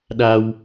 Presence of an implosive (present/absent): present